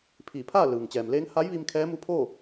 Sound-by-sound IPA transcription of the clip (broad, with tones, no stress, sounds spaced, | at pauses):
pʰ iː˧˩ pʰ aː˥˨ l ɯː˩ ŋ t͡ɕ ɛː˩ m l eː˧˥ ŋ h a˧˥ j ʋ i˧ m kʰ ɛː˧˥ m u˧˥ pʰ o˥˨